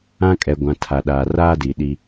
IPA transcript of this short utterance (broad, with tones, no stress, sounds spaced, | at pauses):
ã˦ kʼ ɛ˨ ɡʷ ã˨ tʰ a˨ ɗ aː˨ r aː˦ d i˨ ɗ i˦